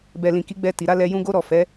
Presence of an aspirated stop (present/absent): absent